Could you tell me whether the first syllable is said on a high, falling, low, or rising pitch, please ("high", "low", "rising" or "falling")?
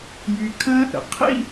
low